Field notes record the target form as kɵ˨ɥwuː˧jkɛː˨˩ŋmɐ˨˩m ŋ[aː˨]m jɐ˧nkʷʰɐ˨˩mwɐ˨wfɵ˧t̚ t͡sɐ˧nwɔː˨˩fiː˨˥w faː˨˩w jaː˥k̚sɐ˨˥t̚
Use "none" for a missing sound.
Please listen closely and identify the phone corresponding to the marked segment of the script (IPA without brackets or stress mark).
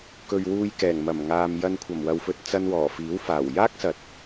aː˨